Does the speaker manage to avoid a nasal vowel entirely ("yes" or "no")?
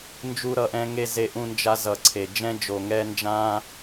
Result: no